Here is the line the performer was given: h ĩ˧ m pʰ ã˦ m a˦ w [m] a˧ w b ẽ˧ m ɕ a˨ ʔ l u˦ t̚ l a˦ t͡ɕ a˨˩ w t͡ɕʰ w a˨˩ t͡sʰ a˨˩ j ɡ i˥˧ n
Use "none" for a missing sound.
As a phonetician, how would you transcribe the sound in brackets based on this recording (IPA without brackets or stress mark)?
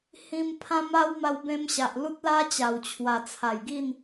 m